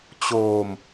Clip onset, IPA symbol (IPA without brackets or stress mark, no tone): t͡ɕ